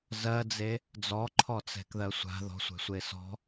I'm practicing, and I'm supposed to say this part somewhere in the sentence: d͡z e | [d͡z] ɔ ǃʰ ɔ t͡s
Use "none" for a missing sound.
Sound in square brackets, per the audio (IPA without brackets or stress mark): d͡z